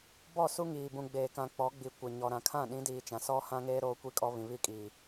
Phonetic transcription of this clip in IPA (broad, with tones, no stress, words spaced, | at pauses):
bɔ˦˨su˦ŋiː˨ bũ˨ɡ͡beː˨ kã˨k͡pɔ˨˦ɡ͡bi˨ kʷɪ˨ɲɔ˨ɾã˨ kʰã˦˨ɗĩ˨˦diː˨t͡ʃã˨ sɔ˦hã˦ŋeː˦ ɾoː˦kʷi˦kʼɔ˦ βĩ˨βi˦˨kʼiː˨